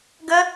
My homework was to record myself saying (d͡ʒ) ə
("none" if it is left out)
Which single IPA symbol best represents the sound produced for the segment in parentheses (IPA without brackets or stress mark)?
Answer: ɡ